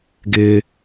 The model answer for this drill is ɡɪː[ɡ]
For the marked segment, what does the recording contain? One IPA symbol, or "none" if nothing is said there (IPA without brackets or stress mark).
none